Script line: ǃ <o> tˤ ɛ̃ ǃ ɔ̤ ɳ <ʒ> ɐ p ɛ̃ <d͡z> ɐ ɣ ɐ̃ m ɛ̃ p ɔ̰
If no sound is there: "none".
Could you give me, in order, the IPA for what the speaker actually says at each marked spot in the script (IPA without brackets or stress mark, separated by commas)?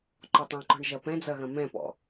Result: ɔ, ʒ, d͡z